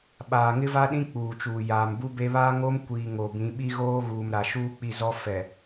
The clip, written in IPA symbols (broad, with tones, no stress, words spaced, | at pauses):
ɓaː˨ŋɪ˦va˦ɗĩ˦ k͡puː˨t͡ʃuː˨ jaː˨mbu˦be˦ βaː˦ŋo˦m kʷiː˨ ŋo˨bĩ˨˦ ɓi˦ɣoː˦ɣuː˨m ɾa˨ʃuː˦k͡pi˦˨ zɔ˦fɛ˨